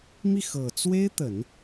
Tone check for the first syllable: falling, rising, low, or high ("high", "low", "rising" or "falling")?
falling